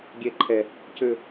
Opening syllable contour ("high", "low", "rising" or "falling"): high